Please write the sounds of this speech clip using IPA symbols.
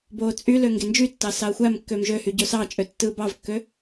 b oː t͡sʼ y l ø ŋ ɡ e n d͡ʒ y tː ɑ s ɑ ɐ̯ xʷ æ m kː ø m ʒ ø h y ɟ o s ɑ t͡ʃʼ ø tː ɯː b ɑ v kː ø

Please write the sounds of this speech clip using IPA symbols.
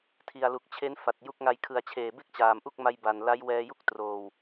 tʰ i˨˩ a̯ l u˨˩ k̚ t͡ɕʰ e˦˥ n f a˨˩ t̚ j u˦˥ k̚ ŋ a˧ j kʰ ɯ˨˩ a̯ t͡ɕʰ eː˨˩ b e˥˩ k̚ t͡ɕ aː˨˩ m ʔ u˥˩ k̚ m a˧ j b a˨˩ n l a˦˥ j w ɛː˧ j u˥˩ k̚ t r oː˨˩ w

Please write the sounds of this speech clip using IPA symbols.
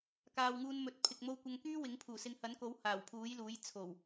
k aː˨ w ŋ uː˧ n m ɵ˨ t̚ pʰ ɪ˨ k̚ m o˧ w kʷ ɐ˧ ŋ k yː˥ w ɪ˨˥ ŋ pʰ uː˨˩ s ɪ˨˧ ŋ h ɐ˨˥ n k o˨˥ w h aː˨˩ w pʰ uː˨˥ j l uː˨˥ j t͡sʰ o˨˩ w

